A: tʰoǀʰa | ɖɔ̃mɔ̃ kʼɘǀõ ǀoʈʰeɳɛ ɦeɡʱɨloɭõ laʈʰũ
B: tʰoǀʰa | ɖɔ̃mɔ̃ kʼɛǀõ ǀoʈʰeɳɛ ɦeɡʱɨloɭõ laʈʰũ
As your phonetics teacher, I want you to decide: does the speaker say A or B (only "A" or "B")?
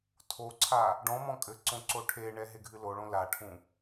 A